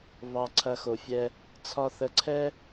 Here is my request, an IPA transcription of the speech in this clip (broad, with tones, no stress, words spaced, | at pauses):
βɑ˧ǀʰɐ˧xo˨fʲɛ˧ | t͡sʰɒ˦ θə˧ ǀʰɛ˦